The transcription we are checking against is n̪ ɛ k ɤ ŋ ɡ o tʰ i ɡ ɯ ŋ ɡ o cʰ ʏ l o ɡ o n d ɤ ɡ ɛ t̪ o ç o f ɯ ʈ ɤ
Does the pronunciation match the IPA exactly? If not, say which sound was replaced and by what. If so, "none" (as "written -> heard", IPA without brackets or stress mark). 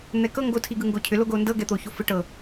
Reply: none